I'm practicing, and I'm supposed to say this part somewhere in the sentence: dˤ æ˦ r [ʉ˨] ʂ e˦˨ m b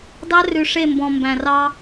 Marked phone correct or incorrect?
correct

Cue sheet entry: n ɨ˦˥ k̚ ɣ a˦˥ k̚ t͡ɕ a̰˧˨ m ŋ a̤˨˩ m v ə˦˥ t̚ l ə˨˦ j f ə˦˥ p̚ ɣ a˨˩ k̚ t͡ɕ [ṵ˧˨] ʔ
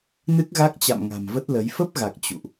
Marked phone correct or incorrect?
correct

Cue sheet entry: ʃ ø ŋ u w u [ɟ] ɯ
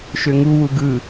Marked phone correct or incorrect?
incorrect: ɡ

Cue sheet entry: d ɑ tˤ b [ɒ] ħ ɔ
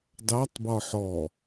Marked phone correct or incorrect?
correct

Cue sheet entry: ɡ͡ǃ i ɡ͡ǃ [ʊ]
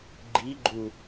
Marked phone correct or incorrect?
incorrect: u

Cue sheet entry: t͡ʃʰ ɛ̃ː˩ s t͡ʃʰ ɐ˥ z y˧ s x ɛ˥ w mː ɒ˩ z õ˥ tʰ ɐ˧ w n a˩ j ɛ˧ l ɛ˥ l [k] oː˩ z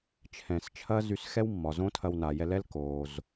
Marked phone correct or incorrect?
correct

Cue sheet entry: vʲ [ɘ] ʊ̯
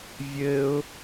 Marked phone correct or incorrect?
correct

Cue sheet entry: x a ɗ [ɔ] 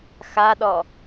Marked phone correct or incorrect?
correct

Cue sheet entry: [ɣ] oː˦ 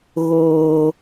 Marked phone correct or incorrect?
correct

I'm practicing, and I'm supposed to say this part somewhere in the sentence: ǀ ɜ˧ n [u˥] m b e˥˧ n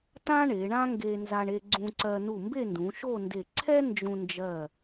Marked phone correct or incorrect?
incorrect: u˧˩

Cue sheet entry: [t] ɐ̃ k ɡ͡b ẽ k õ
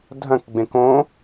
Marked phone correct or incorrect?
incorrect: dʱ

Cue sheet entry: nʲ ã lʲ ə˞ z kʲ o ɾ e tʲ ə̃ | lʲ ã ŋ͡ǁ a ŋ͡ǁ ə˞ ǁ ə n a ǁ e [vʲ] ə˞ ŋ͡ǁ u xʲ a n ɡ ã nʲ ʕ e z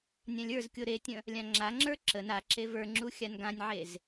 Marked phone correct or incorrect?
incorrect: v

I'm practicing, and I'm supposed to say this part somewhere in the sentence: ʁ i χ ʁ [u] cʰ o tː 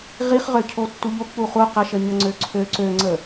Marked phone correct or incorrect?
incorrect: ø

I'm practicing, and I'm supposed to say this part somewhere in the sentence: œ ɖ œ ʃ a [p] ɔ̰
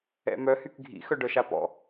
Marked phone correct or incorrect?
correct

